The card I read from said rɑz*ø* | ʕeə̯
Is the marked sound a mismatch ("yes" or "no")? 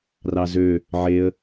no